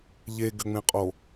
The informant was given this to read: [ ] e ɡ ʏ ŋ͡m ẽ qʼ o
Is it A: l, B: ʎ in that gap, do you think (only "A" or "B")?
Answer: B